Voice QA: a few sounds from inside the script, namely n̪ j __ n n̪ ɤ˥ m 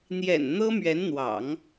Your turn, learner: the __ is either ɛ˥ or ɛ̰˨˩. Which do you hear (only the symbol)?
ɛ̰˨˩